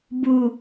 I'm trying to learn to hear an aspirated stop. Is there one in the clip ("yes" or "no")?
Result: no